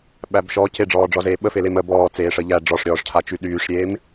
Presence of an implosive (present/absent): present